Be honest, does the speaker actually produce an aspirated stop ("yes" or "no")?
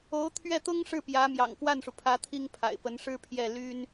yes